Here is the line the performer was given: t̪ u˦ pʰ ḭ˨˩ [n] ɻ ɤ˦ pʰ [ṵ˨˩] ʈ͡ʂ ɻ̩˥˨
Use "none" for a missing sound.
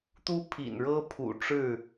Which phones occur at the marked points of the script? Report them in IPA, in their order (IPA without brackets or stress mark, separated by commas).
n, ṵ˨˩